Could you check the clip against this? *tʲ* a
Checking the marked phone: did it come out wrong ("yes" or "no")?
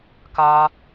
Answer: yes